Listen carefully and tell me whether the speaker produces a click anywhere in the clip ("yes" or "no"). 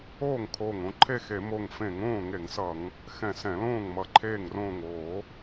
yes